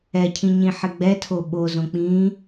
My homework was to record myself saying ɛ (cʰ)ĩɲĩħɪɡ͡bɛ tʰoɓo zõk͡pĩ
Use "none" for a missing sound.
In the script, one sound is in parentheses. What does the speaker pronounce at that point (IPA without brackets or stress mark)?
cʰ